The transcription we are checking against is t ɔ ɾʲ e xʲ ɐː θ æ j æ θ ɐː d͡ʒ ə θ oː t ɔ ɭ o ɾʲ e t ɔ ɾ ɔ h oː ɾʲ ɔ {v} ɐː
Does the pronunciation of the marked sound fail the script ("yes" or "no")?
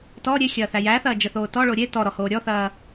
yes